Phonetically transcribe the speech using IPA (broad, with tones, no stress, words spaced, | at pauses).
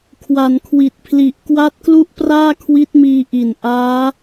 kʰwa˩˦nkʰwi˨˩t̚ pʰli˨˩ʔ kwa˦˥t̚klu˥˩ʔ praː˥˩kʰwi˦˥t̚miː˧ʔi˨˩n ʔaː˦˥